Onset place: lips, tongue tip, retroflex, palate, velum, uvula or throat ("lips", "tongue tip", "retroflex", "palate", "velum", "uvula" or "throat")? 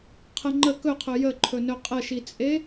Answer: uvula